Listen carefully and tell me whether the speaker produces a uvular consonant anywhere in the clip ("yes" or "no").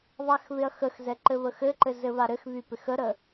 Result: no